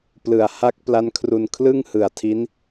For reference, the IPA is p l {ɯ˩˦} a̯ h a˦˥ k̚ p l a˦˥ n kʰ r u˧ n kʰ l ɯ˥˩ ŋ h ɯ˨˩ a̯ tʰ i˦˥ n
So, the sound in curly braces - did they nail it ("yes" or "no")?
no